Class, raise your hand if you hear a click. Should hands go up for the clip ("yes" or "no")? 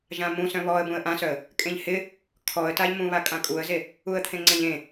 yes